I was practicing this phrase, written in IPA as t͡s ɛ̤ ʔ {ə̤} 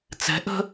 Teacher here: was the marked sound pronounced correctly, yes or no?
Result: yes